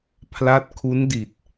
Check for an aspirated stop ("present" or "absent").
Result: present